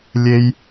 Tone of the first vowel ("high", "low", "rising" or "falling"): high